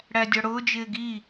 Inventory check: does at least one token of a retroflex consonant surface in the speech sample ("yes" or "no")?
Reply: yes